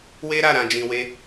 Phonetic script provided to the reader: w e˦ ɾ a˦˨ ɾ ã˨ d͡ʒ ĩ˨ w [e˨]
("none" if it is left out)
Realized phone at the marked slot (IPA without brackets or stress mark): e˧